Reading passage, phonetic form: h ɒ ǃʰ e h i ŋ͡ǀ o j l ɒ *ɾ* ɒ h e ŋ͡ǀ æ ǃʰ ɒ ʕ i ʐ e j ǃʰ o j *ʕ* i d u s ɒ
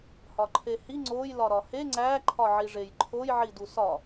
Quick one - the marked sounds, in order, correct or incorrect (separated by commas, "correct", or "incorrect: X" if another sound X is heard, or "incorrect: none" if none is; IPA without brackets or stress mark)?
correct, correct